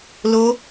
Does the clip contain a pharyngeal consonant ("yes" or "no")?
no